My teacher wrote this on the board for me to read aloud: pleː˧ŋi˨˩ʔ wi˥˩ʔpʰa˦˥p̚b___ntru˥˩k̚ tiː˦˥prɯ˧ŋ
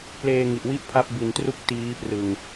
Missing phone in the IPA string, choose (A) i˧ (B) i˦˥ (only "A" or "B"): A